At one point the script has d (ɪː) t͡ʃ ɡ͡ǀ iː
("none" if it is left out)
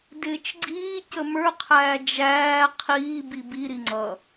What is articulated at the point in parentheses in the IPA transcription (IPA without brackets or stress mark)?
ɪː